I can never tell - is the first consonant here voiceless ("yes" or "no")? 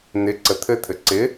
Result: no